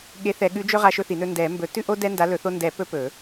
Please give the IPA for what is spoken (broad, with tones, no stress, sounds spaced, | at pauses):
ɠ e˨˥ θ ɛ˨˩˦ ɠ ʉ˨˥ d͡ʒ ɵ˦ ʁ a˦ ʃ ɵ˦ θ i˨˩˦ n ɵ˦ n d ɛ˨˩˦ m b ɵ˨˩˦ t ʉ˦ ʔ o˦ d ɛ˦ n d a˨˥ l ɵ˨˩˦ θ o˦ n d ɛ˨˩˦ p ɵ˦ p ɵ˨˩˦